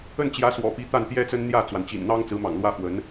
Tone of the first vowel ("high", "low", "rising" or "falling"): falling